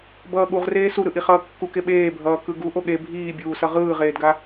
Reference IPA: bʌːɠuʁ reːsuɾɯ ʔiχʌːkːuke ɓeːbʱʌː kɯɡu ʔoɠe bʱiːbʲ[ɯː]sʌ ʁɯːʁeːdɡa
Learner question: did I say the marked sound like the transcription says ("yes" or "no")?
no